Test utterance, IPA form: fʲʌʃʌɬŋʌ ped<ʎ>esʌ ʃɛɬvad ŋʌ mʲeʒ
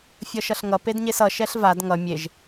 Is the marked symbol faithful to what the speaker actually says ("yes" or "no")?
no